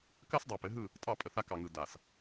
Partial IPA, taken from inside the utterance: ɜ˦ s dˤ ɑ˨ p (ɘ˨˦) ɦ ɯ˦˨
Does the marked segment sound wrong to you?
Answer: no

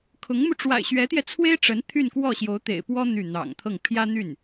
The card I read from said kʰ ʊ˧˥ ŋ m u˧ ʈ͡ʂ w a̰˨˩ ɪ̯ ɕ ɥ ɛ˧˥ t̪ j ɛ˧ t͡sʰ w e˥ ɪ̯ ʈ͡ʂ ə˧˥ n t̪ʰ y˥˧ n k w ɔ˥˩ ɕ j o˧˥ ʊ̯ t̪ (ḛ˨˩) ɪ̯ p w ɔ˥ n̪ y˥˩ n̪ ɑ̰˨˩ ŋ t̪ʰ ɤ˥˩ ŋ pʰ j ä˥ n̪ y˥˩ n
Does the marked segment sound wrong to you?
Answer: no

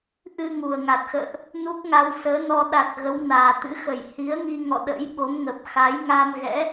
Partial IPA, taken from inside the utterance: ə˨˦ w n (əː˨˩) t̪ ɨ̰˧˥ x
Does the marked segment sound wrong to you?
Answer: yes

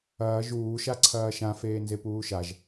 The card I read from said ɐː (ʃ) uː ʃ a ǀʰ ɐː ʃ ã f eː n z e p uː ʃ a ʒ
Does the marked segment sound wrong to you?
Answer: yes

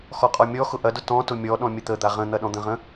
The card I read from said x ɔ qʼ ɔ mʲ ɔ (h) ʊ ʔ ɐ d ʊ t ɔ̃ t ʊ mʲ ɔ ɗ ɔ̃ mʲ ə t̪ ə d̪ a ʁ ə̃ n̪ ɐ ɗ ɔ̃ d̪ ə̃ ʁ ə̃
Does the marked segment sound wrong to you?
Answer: yes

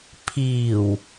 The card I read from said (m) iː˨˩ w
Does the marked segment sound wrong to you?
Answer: yes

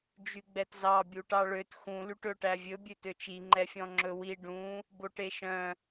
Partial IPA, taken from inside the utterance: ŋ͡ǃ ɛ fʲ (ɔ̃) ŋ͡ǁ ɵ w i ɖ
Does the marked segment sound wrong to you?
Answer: no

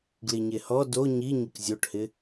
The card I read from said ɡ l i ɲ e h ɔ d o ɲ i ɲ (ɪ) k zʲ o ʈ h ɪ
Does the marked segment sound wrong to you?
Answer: no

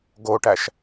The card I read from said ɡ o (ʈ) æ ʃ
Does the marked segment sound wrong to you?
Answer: no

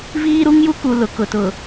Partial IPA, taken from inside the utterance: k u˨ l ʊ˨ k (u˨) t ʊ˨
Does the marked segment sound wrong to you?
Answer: yes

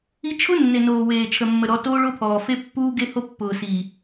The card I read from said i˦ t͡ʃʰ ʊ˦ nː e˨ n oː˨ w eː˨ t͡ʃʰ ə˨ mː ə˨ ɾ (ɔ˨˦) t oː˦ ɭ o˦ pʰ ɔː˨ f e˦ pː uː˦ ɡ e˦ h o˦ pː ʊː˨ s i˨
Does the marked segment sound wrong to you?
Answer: no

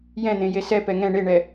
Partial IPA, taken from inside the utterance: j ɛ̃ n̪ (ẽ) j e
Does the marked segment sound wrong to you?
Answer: no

